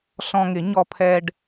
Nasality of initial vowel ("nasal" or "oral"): nasal